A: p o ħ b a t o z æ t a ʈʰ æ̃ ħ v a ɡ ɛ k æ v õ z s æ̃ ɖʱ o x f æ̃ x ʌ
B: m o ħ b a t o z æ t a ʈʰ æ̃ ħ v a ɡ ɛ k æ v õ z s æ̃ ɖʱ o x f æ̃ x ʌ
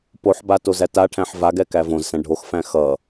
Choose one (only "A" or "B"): A